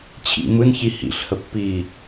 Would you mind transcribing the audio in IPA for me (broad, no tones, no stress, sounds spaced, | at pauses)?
t͡ɕʰ ḭ m ɯ n ç i h ḭ ɬ h ə pː iː